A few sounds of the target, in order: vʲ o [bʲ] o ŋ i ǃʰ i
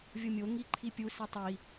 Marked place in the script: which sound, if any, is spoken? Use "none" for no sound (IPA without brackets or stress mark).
mʲ